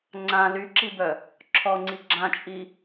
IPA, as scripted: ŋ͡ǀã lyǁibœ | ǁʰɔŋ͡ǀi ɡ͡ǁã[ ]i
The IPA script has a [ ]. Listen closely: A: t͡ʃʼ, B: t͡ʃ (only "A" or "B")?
A